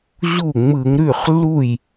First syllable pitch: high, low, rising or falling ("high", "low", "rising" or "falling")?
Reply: falling